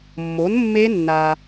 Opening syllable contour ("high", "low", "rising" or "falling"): rising